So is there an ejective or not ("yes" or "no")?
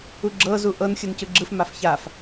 no